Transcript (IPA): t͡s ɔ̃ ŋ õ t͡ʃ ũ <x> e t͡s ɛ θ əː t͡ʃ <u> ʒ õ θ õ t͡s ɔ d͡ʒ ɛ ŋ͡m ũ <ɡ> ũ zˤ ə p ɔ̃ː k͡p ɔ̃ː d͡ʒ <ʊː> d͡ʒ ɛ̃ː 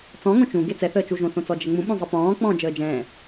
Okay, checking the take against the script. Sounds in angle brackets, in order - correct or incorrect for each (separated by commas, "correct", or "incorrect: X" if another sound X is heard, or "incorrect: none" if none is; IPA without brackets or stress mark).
incorrect: ɡ, correct, incorrect: ɓ, incorrect: əː